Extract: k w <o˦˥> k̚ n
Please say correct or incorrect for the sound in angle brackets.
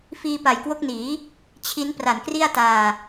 correct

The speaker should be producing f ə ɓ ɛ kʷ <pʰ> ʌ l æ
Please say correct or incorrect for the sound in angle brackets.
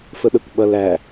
incorrect: ɓ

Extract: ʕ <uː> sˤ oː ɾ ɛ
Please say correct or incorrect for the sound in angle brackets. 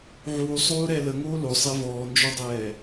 correct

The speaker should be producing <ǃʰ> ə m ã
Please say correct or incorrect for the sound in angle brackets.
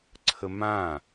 incorrect: ǀʰ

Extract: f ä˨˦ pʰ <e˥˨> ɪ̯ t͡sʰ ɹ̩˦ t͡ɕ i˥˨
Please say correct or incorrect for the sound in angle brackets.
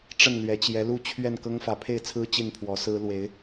correct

